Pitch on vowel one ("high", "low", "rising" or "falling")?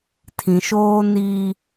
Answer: low